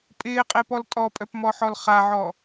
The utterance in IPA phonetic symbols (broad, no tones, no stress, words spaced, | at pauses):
pʼɪːqʼepɔl tʼɔpʼœpmɔħɔl χaʕɔ